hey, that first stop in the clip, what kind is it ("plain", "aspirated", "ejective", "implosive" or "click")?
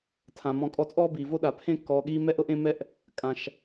aspirated